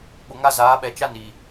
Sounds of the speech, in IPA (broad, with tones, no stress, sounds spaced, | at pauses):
ɓ ʊ˨ ŋ a˦ z aː˨˦ ɓ ɛ˨ t͡ʃ a˦ n i˨